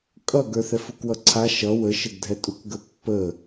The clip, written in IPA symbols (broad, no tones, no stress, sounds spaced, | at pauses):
kʼ ʌ ɡ ə˞ θ ɛ f u k w ʌ ǀʰ a ʃ ʌ w ə ʃ ə ɡ dʱ ɛ tʼ u k ɡ ə pː ə